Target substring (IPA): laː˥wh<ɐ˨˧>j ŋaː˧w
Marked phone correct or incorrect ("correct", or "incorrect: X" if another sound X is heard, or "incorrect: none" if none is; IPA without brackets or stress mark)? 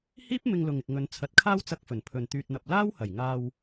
incorrect: ɐ˨˩